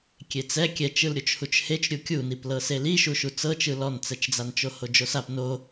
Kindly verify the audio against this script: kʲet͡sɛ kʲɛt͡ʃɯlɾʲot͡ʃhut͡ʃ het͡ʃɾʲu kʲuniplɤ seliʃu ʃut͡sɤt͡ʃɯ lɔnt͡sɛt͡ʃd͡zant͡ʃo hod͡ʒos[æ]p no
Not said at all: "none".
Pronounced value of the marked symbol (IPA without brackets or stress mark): a